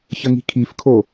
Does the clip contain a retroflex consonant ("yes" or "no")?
no